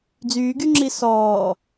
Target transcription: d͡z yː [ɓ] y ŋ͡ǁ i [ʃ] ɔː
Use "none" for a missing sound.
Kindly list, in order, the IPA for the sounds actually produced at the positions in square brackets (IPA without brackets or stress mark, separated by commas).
ɡ, s